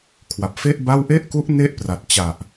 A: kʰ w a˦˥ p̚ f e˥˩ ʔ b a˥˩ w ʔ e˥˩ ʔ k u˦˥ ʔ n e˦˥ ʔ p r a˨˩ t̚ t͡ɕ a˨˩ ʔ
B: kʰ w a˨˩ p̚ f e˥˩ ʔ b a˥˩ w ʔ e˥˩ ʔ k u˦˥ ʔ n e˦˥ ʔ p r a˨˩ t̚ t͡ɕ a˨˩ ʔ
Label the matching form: B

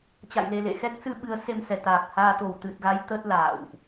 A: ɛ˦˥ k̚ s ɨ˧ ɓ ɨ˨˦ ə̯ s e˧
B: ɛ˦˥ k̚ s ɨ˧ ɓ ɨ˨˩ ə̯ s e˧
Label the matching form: A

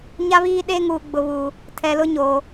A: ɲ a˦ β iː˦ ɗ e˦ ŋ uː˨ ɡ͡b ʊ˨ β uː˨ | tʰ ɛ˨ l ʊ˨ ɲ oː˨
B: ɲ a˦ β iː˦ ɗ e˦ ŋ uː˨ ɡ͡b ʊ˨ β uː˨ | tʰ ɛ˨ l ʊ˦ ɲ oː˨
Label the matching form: B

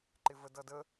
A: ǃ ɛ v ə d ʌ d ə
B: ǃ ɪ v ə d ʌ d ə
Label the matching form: B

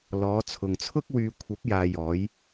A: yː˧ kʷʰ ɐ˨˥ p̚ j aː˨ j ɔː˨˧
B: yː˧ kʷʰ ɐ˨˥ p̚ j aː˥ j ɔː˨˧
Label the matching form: A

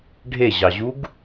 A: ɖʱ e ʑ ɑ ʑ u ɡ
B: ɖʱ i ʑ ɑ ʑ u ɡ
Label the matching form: A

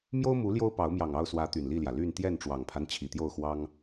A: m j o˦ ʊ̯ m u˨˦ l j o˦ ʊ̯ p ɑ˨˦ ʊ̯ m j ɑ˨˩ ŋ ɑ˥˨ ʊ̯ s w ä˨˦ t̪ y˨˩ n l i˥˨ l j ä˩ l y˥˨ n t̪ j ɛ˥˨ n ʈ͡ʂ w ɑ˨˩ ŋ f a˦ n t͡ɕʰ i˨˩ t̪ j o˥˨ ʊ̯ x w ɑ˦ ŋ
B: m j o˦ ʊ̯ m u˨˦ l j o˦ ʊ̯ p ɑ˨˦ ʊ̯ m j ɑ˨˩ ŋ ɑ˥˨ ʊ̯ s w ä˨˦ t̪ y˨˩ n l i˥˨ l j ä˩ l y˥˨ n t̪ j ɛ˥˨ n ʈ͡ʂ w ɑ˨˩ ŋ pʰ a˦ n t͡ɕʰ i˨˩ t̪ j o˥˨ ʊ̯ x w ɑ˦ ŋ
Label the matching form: B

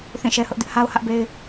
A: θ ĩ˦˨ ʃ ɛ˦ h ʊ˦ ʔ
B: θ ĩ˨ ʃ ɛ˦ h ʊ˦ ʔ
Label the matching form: A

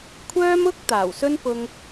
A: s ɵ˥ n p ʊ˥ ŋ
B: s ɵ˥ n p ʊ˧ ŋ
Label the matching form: B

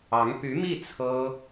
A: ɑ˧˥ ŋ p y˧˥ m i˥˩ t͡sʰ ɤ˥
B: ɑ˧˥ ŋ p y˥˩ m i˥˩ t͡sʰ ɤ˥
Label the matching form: A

